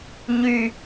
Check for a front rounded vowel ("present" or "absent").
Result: present